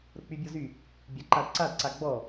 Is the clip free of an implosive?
yes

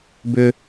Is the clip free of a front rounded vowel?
no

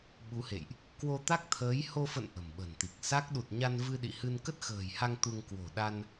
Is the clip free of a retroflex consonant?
yes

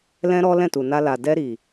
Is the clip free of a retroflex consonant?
yes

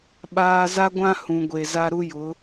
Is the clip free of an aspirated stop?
yes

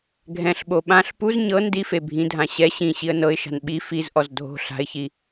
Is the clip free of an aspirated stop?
yes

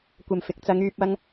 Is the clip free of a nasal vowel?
yes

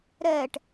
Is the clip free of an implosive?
yes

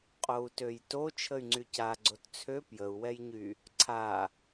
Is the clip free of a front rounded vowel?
no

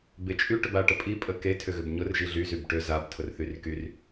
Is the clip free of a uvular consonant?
yes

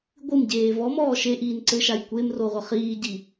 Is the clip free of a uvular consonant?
no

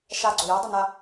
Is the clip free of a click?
no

